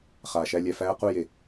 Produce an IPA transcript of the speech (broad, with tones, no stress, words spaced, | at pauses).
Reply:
χaː˨ʃæ˧ lʲæ˨ fæː˧qu˦˨ je˨